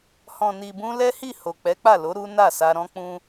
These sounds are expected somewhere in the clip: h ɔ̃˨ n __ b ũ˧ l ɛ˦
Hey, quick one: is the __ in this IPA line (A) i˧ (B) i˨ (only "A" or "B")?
B